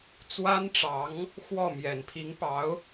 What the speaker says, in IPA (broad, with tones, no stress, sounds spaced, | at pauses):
t͡s w a˥ n ʈ͡ʂ ɑ˧˥ ŋ | x w ɔ˥˩ m j ɛ˨˩ n pʰ i˧˥ ŋ p ɑ˧˥ ʊ̯